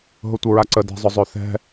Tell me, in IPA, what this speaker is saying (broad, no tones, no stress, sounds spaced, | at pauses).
ɦ ʊ tʷ ə ɹ a ǀ ə d ɛ̤ zˤ ʊ zˤ ø θ ɛ̤